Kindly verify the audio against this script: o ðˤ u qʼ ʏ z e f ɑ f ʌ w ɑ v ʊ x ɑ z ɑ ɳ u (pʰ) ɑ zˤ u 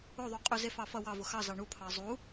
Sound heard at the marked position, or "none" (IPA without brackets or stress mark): pʰ